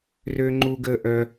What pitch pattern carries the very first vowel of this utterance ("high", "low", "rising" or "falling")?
high